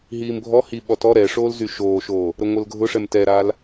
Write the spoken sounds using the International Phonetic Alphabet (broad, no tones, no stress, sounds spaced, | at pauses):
ɦ iː m bʱ ɔ h i ɓ ɔ t ɔ ɾ ɛ ʂ oː l z y ʃ oː ʃ oː | ɾ ə ŋʷ ə l ɡʱ ʊ ʂ ɛ m t ɛ ɾ aː l